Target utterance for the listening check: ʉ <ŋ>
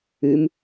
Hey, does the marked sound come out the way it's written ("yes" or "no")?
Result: no